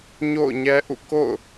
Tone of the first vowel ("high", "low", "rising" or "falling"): falling